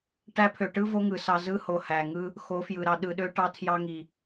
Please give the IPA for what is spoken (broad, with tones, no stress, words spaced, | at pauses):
ʈæ˧pʰø˨ʈɯ˦ vo˦ŋɯ˨sɑ˧ zɯ˦ho˨ hæ˨ŋɯ˦ | xo˨˦fjɯ˨ɾɑ˧ ɗɯ˨ɗø˧ ʈɑ˧tʰjɑ˧ŋi˨